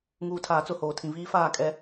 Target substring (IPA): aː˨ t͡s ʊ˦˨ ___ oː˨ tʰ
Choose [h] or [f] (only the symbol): h